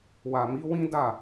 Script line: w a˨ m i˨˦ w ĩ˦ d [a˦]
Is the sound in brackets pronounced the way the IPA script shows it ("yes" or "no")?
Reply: no